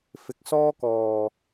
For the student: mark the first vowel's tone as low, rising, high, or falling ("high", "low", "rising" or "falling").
low